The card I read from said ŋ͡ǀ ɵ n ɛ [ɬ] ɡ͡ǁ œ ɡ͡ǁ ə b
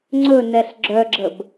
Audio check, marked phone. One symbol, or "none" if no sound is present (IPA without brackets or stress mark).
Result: ɬ